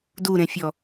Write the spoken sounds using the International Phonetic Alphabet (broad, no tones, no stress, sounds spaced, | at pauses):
d u ɾ ẽ fʲ ɔ